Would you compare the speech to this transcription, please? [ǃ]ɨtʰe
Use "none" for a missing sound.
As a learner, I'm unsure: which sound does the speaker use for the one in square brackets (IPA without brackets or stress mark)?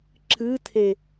ǁ